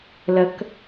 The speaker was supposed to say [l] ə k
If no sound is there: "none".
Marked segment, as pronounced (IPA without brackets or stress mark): l